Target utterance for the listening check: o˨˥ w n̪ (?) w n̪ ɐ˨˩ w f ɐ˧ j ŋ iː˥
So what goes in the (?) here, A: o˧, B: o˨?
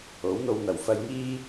A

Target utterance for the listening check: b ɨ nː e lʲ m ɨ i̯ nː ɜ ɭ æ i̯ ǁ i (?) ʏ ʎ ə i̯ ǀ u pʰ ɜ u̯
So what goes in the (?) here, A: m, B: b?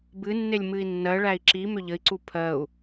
A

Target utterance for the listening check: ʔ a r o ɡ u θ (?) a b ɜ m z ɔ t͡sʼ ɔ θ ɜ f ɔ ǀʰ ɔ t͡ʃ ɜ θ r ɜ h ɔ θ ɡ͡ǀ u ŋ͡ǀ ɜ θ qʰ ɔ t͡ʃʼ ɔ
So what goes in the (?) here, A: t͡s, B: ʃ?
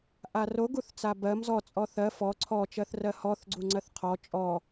A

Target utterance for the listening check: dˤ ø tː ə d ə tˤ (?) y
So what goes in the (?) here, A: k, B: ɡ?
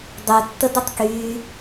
A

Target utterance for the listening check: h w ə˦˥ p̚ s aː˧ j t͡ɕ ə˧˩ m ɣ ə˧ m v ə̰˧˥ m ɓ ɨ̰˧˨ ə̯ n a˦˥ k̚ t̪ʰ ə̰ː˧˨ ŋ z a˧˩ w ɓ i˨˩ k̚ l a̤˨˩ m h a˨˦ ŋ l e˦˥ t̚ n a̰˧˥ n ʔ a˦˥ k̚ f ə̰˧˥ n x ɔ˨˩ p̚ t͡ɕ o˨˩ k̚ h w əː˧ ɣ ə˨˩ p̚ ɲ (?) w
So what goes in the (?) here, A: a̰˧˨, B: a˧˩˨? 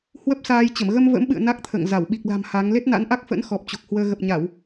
B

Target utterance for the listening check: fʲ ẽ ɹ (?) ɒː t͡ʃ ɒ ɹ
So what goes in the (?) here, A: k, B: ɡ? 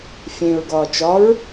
B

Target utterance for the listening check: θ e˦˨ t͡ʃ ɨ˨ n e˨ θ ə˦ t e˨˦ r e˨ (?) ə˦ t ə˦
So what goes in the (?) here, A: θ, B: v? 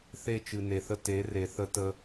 A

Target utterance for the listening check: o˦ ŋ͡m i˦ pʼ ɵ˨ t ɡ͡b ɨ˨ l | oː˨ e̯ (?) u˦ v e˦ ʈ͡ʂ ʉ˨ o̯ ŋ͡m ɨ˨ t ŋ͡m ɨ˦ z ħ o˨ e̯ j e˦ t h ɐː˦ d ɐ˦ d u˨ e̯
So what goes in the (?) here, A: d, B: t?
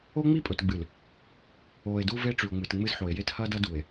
A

